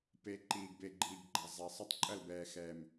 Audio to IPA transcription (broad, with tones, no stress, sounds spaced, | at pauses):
p e˨ ǃ iː˨ ɡ b e˨ ɡ͡ǃ iː˨ ɡ ɡ͡ǃ a˨ zˤ ɛ˨ sˤ ɐ˦ tˤ ǃʼ ɐ˦˨ l b ɛː˨ x ɛː˨ m